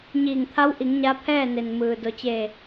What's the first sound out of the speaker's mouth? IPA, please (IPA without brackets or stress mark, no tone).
ɲ